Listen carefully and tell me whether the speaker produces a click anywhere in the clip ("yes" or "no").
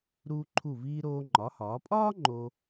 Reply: yes